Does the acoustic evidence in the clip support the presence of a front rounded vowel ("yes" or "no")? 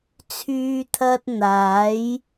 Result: yes